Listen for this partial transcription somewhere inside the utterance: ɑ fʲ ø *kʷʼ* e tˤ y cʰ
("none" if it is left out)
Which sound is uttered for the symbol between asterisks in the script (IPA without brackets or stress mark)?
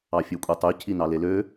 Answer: kʷʼ